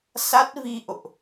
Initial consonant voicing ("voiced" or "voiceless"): voiceless